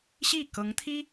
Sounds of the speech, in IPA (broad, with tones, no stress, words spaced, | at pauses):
ɕi˥˩kɤ˧˥ŋ t̪ʰi˥